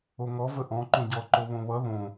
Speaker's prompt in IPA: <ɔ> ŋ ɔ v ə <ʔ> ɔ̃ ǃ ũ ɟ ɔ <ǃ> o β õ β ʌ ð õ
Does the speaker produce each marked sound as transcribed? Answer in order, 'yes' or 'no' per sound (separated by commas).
no, yes, yes